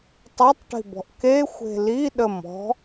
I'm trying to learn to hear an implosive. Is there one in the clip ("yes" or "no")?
yes